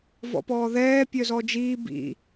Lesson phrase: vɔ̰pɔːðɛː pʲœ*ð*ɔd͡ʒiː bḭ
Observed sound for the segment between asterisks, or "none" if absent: z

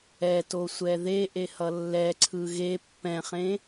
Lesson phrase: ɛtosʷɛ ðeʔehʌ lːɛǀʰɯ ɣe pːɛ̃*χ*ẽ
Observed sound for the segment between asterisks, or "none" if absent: χ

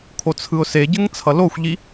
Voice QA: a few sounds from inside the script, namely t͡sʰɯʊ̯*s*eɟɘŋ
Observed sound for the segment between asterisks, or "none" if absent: s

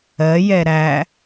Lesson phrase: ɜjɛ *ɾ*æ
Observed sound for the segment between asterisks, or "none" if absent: ɾ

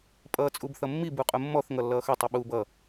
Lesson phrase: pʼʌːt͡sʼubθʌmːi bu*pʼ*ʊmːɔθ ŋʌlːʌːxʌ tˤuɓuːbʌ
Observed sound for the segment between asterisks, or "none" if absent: qʼ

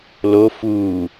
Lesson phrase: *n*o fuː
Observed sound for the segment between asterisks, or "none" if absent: l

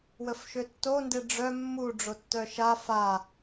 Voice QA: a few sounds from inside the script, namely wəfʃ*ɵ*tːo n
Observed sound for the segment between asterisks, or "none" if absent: ø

